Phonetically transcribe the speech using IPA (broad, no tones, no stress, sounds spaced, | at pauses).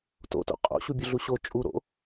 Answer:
t o̰ t o̰ qʼ o̰ ɕ u bʲ ʊ ɮ u ɕ o t͡ʃʼ u ɾ o̰